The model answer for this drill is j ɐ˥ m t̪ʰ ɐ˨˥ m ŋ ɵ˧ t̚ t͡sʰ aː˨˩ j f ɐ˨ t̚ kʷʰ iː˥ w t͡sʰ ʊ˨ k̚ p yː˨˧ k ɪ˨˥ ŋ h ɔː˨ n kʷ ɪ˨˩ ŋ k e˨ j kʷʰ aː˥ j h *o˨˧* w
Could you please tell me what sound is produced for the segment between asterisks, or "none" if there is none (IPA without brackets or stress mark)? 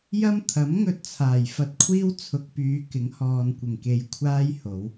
o˨˧